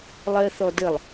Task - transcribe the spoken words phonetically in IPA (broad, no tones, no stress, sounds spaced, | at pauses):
lˠ ɜ θ ɔ d ə lˠ